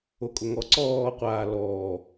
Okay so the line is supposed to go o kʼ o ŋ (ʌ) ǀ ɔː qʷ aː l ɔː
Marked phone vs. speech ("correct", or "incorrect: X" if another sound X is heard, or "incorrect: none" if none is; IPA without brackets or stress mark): incorrect: ɔ